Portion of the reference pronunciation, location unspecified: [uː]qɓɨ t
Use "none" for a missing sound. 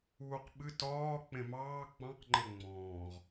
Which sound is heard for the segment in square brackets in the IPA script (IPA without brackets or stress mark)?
uː